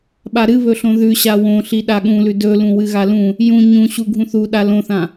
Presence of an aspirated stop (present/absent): absent